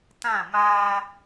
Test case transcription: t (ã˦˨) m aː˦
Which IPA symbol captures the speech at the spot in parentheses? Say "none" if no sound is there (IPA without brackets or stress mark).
ã˦˨